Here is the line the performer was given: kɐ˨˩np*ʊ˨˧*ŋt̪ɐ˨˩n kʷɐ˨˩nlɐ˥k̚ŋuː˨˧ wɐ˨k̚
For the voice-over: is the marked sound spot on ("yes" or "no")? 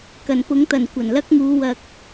no